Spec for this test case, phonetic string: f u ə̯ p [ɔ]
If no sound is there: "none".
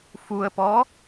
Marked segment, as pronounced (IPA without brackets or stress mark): ɔ